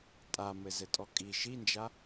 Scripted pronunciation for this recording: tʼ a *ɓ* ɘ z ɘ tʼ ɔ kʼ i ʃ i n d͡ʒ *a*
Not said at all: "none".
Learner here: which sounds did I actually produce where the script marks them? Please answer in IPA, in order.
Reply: m, a

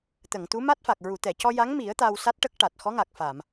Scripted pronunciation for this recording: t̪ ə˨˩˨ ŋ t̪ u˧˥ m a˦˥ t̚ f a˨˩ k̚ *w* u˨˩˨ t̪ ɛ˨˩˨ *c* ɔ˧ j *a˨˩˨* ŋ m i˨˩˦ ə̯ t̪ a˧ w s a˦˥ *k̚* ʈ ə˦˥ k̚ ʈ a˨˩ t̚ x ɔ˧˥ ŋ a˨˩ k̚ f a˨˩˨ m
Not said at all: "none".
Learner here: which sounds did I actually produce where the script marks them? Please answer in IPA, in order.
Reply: ɹ, c, a˧˥, t̚

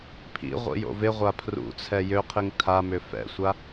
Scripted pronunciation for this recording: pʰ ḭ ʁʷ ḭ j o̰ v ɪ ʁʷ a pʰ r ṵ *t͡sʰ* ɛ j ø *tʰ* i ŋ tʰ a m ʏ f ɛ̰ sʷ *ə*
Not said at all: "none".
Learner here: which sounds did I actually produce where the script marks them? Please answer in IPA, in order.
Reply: t͡sʰ, qʰ, a

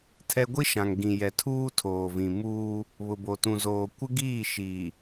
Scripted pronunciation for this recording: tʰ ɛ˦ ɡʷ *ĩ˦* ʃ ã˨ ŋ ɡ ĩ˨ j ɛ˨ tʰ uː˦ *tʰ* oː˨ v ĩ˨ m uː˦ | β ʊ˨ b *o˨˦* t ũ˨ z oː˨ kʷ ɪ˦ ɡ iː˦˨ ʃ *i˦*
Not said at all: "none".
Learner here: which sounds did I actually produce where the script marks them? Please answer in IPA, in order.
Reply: i˦, tʰ, o˨, i˨

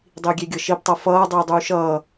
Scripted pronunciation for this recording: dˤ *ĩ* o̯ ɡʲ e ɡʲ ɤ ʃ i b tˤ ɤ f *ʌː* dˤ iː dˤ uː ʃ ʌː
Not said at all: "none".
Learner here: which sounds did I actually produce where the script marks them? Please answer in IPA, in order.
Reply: i, ʌː

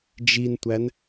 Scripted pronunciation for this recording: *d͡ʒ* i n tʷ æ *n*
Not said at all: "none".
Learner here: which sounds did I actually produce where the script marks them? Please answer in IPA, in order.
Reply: d͡ʒ, n

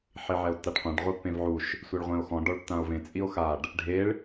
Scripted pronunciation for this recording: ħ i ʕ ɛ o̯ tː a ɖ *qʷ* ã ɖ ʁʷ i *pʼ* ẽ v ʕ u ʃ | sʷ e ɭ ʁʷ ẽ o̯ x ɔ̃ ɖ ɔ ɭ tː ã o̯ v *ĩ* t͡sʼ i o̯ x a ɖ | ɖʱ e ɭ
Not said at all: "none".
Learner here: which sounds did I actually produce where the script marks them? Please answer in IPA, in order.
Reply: qʷ, pː, ẽ

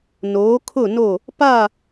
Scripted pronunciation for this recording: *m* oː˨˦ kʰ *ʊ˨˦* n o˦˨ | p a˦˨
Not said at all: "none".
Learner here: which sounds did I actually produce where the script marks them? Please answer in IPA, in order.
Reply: n, ʊ˦˨

